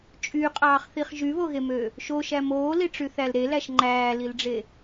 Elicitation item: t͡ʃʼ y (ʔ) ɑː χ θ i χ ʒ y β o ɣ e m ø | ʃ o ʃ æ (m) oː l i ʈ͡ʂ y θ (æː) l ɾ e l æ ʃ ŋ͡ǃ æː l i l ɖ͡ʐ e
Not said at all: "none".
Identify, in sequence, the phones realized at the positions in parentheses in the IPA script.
qʼ, m, æ

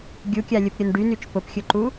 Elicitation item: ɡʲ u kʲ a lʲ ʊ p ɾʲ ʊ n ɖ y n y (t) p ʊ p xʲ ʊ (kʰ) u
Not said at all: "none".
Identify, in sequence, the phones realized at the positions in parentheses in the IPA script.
t͡ʃ, ǃ

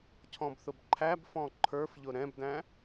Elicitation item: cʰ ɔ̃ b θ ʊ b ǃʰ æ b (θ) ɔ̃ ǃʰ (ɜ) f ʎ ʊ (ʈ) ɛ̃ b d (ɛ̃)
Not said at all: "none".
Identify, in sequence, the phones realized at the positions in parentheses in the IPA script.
f, ə˞, ɾ, æ̃

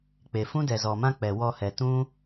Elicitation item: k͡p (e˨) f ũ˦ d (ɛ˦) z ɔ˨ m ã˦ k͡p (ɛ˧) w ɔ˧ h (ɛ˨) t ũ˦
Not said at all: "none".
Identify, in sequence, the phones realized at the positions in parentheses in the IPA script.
e˨, ɛ˨, ɛ˨, ɛ˨

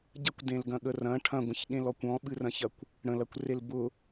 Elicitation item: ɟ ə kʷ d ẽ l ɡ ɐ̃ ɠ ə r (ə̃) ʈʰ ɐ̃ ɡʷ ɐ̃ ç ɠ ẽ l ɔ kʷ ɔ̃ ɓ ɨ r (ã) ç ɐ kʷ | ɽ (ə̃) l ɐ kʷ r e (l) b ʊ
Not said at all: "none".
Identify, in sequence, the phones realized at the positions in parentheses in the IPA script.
ɐ̃, ɐ̃, ə̃, l

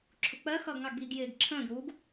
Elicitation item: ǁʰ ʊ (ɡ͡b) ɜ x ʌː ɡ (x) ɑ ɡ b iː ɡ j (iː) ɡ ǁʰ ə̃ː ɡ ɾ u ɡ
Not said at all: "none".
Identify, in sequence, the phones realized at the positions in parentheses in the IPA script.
k͡p, ŋ, ɪː

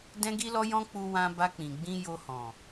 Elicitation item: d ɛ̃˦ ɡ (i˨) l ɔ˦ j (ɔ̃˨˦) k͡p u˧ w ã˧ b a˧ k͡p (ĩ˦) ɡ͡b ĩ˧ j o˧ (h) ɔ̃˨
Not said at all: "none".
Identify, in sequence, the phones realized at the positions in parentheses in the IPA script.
i˦, ɔ̃˦, ĩ˨, h

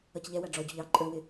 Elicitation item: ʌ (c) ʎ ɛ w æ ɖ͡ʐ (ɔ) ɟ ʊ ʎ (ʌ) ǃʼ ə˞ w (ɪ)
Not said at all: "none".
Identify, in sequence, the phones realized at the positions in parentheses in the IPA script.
c, ɔ, ɑ, ɪ

